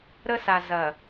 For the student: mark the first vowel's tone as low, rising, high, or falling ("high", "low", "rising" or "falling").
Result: high